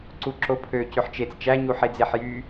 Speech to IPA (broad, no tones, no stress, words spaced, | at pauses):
ǀuǁopʰø cøħt͡ʃet͡s t͡ʃæ ɲuħed͡zeħjy